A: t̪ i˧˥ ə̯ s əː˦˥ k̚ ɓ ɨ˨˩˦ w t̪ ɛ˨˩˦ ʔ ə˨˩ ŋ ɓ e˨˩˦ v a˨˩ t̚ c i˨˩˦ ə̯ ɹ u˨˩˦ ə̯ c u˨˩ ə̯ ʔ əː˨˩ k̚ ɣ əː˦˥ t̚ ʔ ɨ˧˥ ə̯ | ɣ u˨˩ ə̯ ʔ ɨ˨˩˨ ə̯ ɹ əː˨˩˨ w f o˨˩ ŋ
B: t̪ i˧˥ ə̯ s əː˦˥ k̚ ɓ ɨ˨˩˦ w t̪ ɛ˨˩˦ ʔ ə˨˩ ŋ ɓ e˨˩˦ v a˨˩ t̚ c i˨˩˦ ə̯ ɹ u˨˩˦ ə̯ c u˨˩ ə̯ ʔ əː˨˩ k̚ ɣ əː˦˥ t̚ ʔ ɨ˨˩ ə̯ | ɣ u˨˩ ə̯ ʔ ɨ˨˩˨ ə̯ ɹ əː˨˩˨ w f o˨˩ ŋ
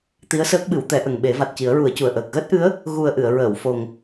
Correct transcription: A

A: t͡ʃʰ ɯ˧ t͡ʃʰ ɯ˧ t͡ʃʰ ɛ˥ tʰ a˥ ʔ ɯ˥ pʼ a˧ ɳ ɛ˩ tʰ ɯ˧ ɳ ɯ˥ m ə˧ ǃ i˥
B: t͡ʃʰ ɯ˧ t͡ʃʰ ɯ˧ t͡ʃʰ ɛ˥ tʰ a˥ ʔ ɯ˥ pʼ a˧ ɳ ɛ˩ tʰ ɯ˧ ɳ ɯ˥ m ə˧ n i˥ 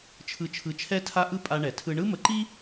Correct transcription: A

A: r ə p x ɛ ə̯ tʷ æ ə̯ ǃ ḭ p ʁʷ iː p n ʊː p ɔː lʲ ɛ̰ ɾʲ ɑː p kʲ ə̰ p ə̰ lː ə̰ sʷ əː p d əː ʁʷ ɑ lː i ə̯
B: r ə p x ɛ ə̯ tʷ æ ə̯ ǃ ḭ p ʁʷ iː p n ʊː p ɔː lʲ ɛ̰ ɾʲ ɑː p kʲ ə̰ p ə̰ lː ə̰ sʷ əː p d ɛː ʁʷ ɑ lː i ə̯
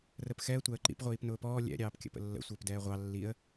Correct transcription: B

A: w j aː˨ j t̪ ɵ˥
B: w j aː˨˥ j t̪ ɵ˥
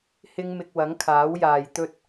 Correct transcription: A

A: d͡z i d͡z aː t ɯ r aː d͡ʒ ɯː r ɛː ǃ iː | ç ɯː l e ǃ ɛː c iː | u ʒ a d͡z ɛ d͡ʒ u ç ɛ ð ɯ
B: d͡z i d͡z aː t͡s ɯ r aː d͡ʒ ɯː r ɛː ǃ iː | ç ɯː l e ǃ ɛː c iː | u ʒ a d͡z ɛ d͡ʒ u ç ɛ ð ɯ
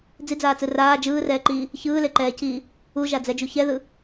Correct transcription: B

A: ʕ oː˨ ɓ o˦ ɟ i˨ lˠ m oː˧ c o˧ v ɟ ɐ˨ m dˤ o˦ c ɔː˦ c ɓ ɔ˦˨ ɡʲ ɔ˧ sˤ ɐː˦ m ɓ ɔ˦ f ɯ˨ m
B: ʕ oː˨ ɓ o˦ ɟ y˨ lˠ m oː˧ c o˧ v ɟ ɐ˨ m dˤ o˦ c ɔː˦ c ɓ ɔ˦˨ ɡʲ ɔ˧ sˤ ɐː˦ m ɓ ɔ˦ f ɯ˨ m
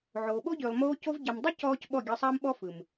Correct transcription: B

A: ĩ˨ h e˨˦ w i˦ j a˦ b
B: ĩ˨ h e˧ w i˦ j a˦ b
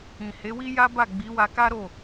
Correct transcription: A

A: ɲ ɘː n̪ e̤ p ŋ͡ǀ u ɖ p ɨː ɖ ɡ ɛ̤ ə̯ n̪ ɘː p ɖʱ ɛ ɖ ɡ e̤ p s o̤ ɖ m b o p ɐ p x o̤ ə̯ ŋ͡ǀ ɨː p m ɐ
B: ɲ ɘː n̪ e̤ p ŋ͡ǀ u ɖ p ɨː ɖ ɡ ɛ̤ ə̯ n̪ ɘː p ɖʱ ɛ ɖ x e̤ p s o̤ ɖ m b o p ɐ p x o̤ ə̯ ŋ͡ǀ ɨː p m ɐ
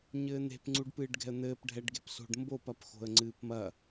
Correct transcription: A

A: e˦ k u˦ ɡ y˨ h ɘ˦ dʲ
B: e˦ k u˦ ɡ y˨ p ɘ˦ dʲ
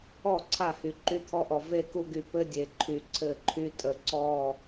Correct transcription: B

